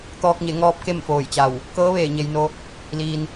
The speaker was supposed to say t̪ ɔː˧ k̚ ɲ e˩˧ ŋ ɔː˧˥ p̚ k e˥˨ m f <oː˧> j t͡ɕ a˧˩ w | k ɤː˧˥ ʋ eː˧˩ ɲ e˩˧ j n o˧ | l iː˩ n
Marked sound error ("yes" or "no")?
yes